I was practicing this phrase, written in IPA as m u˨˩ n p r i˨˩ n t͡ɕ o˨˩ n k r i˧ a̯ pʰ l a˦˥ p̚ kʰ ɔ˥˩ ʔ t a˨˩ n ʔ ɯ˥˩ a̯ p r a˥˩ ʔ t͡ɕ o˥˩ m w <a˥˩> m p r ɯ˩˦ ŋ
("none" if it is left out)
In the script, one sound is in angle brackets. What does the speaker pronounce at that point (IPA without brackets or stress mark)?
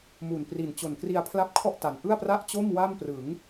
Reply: a˥˩